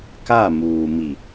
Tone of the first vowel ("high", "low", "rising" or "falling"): falling